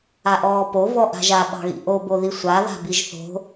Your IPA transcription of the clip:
a ʔ ɔː p o v ɔ ʔ a̤ ʒ a ɓ ɑ̤ ɣ ḭ ʔ o b o ð i sʷ a ð a̤ b i ʒ θ o̤

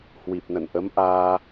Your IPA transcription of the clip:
h w i˨˩ p̚ n ə̰˧˨ n ʔ ə˨˦ m ʔ aː˧

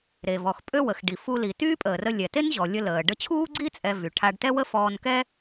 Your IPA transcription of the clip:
ɾ e˩ v ɔ˩ x pʼ ø˥ w ə˩ x ɖ i˩ f u˧ l i˩ t yː˥ pʼ əː˩ r ə˧ lʲ ɛ˩ t e˥ n ʑ ɔ˩ lʲ ə˧ l əː˩ ɖ ə˧ t͡ɕʰ uː˥ ɡ͡ǀ i˥ t͡sʼ ɛ˧ v y˩ ʈʰ a˧ ɖ t ɛ˥ w ə˥ f ɔː˧ n k ɛ˥

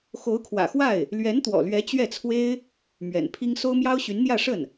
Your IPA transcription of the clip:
x o˧˥ ʊ̯ kʰ w ä̰˨˩ x w a˥˩ ɪ̯ | l ɥ ɛ˧˥ n t̪ w ɔ̰˨˩ l ɥ ɛ˧˥ t͡ɕ ɥ ɛ˥˩ t͡sʰ w e˥ ɪ̯ | m ɥ ɛ̰˨˩ n pʰ i˥ ŋ s o˥ ʊ̯ m j ɑ˥ ʊ̯ ɕ y˧˥ n n̪ j ä˥˧ ʂ ə˥˩ n

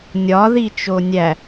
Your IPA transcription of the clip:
nʲ ɒ ð i t͡ʃ o nʲ æ

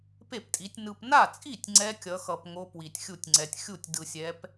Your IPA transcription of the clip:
p e˥˩ p tʼ i˨˦ tʲ n ɯ˨ p n a˥˩ t͡sʼ i˥˩ tʲ ŋ͡ǀ ɛ˦˥ kʲ ʌ˨˦ x ʌ˨ p ŋ o˦˥ p w i˨ tʲ xʲ u˥˩ tʲ ŋ͡ǀ ɛ˨ tʲ xʲ u˥˩ tʲ d ɯ˨ sʲ ɛ˨˦ p

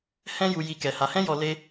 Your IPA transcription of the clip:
h ɛ̃˦ j u˧ j i˧ k ɛ˧ h a˧ h ɛ̃˦ j ɔ˧ l e˦

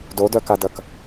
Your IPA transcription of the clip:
d o d œ k a d ɐ k

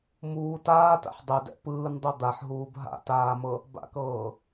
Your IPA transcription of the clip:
m uː t aː t a̰ ħ dˤ e d ɛ̰ p ɯː n dˤ o d̪ a ħ ɦ uː b ɦ a̰ t aː m ɤ | b a̰ k ɤː

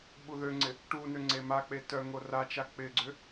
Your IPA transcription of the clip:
ɓ u ð ø ŋ͡ǀ ɪ | ʈ u n ø ŋ͡ǀ e m a k͡p e t œ ŋ o r a t͡ʃ a k͡p ɪ ɡ͡ǀ ʏ

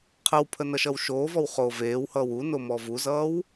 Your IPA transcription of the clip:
qʰ ə w pʰ ə n ʌ ʃ ʌ w ʃ oː v ɔ w χ oː v eː w h ʌː w u n o m ɔ v u z ʌː w

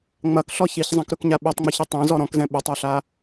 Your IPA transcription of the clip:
ŋ͡m ɐ k ɬ ɔ ç i ç zˤ ɛ̃ k ɾ ɵ k ɲ a ɓ e tˤ ŋ͡m ɵ ç i tˤ ẽ z ɔ ɾ ɔ̃ k z ɛ̃ ɓ ɵ tˤ ɐ ɬ a

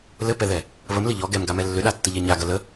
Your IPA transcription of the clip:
l ɘ p ɛ ð ɛ | β ə m l ɘ ʎ ɔ ɡ ɛ m ɡ a m ɛ lː ʏ ɗ a tː ə ʎ ɛ ɲ a ɡ ɐ l ə

